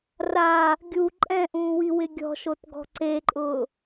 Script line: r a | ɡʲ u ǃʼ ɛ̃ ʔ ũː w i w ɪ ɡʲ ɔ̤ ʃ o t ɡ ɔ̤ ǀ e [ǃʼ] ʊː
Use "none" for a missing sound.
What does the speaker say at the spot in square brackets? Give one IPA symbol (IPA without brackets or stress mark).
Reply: ǃʼ